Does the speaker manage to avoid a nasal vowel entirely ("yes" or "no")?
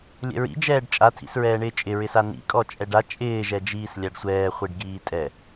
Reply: yes